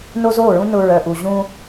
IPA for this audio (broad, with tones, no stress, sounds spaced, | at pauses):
n o˦ z oː˦˨ ɹ ũ˦ n ʊ˨ ɹ œ˨ ʔ u˨ ʑ ũ˦